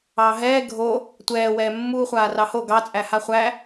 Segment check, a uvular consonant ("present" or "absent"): present